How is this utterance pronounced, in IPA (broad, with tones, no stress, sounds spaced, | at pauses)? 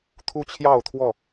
t̪ʰ u˦ t͡ɕʰ j ɑ˥˨ ʊ̯ t̪ʰ w ɔ˥˨